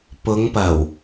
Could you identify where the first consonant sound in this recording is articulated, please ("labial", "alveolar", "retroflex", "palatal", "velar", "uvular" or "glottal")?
labial